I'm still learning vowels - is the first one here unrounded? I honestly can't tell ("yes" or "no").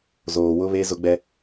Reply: no